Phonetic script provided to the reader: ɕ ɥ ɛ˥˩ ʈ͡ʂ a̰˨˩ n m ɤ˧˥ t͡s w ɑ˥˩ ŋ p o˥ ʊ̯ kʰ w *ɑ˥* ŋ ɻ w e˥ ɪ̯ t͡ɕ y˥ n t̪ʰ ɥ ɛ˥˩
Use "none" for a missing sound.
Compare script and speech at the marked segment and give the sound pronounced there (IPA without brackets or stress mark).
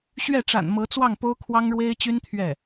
ɑ˥